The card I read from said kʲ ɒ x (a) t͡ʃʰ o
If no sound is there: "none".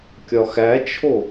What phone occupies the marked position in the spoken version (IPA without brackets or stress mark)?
æ